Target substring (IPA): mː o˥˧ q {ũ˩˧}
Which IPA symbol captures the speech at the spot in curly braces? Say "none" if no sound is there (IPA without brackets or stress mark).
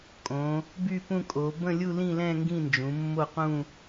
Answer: ũ˥˧